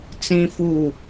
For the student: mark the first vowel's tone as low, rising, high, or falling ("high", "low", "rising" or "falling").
high